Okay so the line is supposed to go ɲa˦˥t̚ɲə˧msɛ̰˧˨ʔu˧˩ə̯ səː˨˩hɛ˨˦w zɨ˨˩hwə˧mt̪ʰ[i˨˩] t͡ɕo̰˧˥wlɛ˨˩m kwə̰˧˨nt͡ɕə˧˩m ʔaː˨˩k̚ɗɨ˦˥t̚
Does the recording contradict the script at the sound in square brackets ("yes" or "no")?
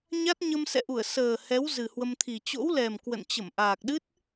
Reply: no